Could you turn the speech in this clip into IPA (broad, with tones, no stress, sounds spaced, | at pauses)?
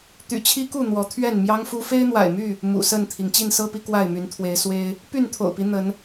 t̪ y̰˨˩ t͡ɕʰ i˦ k u˥˨ n̪ w ɔ˨˦ t̪ʰ ɥ ɛ˥˨ n m j ɑ˦ ŋ f u˦ f e˦ ɪ̯ n̪ w a̰˨˩ ɪ̯ m y˥˨ | m ṵ˨˩ s ə˥˨ n t̪ʰ i˩ ŋ t͡ɕ i˥˨ n s ɤ˦ p i˨˦ k w a˥˨ ɪ̯ m y˨˦ n t̪ʰ w e˨˦ ɪ̯ s w e˦ ɪ̯ | p y˥˨ n t̪ʰ o̰˨˩ ʊ̯ p i˦ n̪ ə˨˦ n